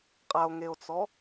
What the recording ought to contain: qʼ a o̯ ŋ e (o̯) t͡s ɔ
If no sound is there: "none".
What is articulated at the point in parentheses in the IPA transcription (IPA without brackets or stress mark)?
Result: o̯